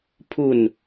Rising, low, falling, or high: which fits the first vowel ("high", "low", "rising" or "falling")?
falling